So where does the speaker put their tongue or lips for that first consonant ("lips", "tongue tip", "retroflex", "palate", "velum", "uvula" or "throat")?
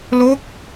tongue tip